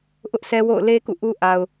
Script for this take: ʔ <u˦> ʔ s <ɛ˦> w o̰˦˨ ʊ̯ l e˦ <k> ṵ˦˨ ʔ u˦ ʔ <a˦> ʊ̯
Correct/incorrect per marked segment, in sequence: incorrect: ʊ˦, correct, correct, incorrect: a˨

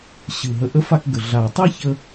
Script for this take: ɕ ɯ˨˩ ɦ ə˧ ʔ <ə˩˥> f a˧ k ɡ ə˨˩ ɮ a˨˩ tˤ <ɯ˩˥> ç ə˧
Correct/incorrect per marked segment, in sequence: incorrect: ə˥, incorrect: ɯ˥

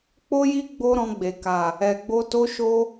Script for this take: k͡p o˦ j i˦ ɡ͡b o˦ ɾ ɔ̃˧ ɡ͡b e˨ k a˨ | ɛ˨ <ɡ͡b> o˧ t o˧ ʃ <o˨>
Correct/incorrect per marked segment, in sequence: correct, incorrect: o˧

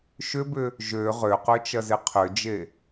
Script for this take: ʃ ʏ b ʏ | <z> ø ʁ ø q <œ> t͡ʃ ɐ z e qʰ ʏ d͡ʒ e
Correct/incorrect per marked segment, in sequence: incorrect: ʒ, incorrect: ø

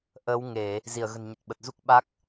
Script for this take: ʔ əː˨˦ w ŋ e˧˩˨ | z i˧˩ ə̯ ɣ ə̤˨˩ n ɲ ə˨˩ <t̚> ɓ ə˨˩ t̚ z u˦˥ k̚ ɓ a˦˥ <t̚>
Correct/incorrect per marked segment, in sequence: correct, incorrect: k̚

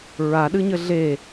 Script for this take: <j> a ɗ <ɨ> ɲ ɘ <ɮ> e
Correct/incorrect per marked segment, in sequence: incorrect: ɹ, correct, correct

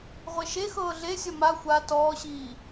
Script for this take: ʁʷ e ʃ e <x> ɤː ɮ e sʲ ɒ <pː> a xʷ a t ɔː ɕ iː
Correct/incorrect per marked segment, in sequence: correct, incorrect: m

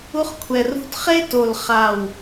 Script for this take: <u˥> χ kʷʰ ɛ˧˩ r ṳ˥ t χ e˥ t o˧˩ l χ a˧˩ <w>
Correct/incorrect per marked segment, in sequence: correct, correct

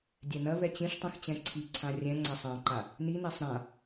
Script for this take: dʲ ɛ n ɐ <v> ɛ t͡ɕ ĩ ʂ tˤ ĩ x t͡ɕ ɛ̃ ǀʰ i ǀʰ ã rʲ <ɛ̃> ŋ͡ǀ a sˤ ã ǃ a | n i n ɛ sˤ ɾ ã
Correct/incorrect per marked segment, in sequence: correct, correct

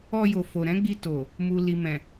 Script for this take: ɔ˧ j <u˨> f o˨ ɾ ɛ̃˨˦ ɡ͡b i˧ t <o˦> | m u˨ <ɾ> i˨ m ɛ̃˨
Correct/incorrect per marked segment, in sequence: incorrect: o˨, incorrect: o˨, incorrect: l

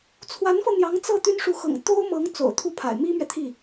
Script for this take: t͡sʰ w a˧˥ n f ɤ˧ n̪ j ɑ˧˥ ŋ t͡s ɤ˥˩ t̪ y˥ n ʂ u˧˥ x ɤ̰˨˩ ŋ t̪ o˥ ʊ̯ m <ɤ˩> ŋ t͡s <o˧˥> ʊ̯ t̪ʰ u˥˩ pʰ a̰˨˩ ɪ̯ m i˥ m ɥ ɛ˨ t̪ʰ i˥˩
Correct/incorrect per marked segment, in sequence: incorrect: ɤ˧˥, incorrect: o̰˨˩

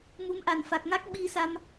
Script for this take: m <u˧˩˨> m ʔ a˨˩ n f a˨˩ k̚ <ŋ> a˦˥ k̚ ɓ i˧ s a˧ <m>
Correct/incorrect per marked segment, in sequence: incorrect: u˨˦, correct, correct

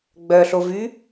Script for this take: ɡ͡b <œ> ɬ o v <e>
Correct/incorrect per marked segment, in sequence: correct, incorrect: y

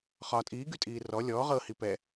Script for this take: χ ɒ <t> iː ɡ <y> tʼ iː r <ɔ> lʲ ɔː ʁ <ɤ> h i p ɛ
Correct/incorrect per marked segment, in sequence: incorrect: tʼ, correct, correct, correct

